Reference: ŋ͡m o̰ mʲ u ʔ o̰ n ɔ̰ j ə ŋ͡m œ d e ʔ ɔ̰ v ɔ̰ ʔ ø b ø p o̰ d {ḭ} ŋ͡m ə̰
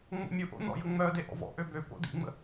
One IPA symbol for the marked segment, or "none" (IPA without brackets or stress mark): ḭ